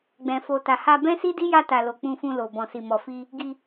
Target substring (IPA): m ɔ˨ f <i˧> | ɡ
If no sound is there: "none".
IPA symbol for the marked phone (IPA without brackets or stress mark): i˧